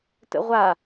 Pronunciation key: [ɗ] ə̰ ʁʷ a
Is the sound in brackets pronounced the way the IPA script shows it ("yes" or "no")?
no